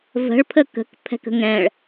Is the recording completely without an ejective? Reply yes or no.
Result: yes